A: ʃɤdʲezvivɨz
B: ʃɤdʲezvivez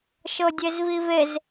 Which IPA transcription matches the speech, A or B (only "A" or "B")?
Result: B